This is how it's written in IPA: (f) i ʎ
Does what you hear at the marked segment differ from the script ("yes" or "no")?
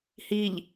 yes